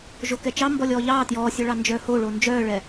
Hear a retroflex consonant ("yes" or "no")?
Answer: yes